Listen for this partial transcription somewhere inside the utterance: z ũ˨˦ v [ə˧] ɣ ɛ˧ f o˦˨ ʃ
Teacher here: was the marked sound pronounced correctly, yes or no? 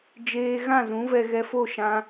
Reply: no